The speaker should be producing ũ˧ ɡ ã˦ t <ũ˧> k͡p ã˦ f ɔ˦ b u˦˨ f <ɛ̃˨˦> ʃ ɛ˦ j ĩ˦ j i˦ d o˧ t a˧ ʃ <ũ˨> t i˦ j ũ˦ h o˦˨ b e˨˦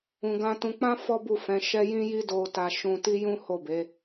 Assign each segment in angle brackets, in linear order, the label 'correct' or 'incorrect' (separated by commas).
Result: correct, correct, incorrect